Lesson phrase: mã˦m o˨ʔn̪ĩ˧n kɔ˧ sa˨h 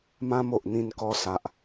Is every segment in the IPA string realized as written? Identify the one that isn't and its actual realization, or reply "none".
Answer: h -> ʔ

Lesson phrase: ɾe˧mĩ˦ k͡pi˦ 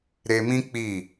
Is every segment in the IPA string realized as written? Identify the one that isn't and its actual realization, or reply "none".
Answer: i˦ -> i˦˨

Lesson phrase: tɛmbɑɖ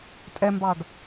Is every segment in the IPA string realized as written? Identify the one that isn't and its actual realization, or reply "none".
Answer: t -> tʼ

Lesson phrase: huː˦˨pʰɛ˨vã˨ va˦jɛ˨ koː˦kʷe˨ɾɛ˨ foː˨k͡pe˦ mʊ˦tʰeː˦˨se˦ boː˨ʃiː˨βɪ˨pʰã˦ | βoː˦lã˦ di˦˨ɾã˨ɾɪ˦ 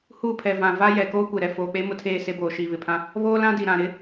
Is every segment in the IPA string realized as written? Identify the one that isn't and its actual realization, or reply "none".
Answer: i˦˨ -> i˨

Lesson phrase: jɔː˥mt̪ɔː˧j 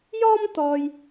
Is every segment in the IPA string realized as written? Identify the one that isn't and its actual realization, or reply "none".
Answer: none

